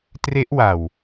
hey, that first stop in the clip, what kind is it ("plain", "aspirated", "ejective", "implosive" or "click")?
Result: plain